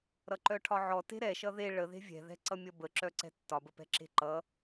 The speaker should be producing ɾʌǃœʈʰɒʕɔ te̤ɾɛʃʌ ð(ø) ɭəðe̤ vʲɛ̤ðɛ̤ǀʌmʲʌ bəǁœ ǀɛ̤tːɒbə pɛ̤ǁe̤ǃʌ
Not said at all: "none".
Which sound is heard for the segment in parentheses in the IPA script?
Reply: e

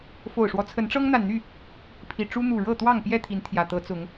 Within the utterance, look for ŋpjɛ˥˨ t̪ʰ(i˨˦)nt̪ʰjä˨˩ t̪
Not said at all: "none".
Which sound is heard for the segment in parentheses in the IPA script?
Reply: i˨˦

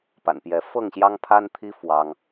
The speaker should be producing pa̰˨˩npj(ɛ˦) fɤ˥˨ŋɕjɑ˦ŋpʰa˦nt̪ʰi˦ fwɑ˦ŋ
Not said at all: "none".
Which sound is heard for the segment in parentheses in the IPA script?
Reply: ɛ˨˦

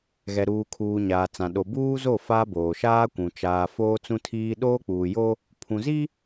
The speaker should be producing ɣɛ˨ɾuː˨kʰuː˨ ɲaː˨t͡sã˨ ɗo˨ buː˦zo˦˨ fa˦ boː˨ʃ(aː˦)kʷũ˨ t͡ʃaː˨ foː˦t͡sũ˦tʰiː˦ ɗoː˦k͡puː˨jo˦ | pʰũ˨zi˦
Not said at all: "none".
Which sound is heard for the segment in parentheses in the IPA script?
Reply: aː˦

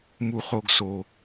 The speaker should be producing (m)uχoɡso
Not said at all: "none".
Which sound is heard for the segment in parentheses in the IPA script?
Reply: m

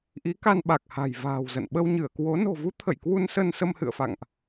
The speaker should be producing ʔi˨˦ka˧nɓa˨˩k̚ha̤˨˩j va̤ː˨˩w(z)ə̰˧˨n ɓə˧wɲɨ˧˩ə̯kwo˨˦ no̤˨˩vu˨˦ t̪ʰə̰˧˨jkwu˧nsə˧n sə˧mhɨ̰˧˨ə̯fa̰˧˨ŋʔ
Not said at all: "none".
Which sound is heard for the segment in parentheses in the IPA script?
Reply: z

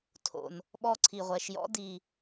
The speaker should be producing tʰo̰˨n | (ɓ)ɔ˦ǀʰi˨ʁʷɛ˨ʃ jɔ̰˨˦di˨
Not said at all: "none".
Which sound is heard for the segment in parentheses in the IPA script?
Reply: ɓ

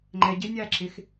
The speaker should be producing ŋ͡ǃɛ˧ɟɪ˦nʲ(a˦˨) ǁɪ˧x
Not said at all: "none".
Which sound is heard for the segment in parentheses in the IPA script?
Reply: a˦˨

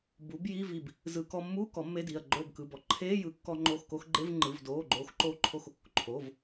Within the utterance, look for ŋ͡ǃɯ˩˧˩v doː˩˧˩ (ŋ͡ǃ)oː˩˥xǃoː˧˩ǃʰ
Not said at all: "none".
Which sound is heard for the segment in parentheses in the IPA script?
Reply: ɡ͡ǃ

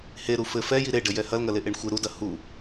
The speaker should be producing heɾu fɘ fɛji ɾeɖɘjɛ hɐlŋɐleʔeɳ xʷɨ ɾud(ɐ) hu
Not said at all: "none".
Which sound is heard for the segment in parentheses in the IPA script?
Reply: ɐ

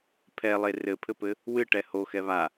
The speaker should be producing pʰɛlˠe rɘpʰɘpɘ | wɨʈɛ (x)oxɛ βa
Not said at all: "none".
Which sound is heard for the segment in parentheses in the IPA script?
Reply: h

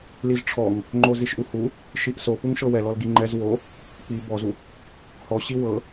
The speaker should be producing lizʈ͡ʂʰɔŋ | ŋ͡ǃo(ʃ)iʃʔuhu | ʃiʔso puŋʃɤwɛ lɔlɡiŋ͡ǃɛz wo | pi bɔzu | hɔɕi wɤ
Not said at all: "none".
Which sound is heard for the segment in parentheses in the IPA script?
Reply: z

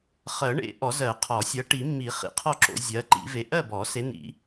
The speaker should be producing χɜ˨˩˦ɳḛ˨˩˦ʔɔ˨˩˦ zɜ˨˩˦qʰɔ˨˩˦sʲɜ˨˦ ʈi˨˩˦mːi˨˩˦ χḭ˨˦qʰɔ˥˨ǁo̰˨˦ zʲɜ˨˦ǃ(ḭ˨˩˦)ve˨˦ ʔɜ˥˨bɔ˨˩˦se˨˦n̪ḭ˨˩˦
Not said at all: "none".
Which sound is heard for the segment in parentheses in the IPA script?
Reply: ḭ˨˩˦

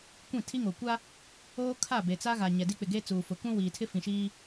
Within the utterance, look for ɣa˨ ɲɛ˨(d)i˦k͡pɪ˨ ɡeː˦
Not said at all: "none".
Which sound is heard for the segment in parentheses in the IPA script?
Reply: d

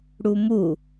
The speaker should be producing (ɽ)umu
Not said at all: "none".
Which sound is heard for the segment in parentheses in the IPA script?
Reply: ɽ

